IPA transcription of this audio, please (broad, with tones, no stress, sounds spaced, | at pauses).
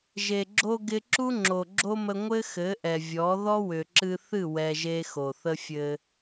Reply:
ʒ e˨ ɡ͡ǁ o˧ ɡ ɪ˧ ǁ u˦ ŋ͡ǁ o˨ ɡ͡ǁ o˦ m ə˧ ŋʷ ɘ˦ x ɘ˨˦ ʔ ɛ˨ vʲ ɔ˨˦ ð ɔ˦ w ʏ˨ ǁ ɨ˧ θ ɨ˦˨ w ɛ˧ ʒ e˦ x o˨ θ ə˦ fʲ ɘ˧